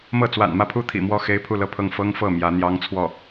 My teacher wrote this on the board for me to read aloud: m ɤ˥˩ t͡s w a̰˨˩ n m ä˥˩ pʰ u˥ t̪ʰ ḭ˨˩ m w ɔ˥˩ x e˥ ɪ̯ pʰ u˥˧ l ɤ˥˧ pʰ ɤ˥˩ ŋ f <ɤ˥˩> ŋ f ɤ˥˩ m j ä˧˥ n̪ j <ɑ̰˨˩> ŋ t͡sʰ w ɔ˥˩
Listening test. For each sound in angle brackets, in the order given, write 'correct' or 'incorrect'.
incorrect: ɤ˥, incorrect: ɑ˥

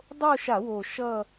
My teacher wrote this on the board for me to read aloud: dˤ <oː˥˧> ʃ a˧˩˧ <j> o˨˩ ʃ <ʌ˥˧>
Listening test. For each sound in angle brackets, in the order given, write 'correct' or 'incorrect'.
incorrect: o˥˧, incorrect: w, correct

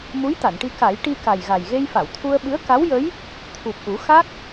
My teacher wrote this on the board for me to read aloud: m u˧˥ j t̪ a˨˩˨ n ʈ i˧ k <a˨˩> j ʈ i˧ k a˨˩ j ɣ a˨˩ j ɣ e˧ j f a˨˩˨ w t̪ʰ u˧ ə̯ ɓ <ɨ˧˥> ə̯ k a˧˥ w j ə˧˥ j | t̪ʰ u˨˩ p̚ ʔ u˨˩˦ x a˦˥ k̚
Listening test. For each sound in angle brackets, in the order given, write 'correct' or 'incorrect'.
incorrect: a˨˩˦, correct

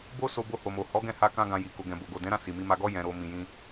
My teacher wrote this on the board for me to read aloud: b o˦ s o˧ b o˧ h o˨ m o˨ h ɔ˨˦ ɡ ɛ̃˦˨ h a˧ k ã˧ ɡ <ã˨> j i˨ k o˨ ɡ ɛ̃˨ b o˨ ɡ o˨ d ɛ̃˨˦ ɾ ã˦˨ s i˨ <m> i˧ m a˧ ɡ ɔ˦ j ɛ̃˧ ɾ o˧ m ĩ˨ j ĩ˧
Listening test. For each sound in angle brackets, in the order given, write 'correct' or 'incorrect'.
correct, correct

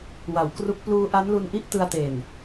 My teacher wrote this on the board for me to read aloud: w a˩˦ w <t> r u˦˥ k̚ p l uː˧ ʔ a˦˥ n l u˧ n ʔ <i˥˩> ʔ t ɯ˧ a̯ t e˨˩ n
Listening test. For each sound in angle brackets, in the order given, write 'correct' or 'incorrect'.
incorrect: k, correct

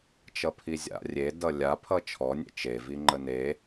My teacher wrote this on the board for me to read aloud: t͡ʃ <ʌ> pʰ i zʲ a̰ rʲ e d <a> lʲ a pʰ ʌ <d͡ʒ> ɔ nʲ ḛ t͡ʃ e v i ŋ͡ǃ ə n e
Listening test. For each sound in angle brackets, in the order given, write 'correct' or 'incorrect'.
correct, incorrect: ʌ, incorrect: t͡ʃʰ

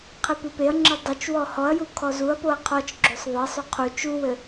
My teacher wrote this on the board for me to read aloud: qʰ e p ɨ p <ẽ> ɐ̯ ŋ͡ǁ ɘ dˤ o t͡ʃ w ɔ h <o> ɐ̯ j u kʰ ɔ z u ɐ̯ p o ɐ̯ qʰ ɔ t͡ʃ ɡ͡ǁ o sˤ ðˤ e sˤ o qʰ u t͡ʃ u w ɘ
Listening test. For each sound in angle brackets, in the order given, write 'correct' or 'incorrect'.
incorrect: e, incorrect: ɔ

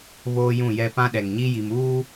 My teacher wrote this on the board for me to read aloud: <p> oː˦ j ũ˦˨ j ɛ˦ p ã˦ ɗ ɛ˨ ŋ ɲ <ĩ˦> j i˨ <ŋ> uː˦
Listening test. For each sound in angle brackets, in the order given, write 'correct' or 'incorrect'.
incorrect: β, incorrect: i˦, incorrect: m

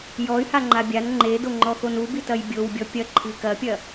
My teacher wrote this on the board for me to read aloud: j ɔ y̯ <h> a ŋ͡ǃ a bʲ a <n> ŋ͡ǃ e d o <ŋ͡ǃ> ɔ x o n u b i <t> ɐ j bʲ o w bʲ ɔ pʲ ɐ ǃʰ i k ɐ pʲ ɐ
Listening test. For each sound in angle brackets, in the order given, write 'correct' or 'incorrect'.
correct, correct, correct, correct

